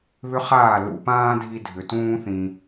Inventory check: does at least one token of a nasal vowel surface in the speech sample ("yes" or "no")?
yes